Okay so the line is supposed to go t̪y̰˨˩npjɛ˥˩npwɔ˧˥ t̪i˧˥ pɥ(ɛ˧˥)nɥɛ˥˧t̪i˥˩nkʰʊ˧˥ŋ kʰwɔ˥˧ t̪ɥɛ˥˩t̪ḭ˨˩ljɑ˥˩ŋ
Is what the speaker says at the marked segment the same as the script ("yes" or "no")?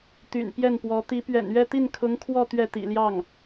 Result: no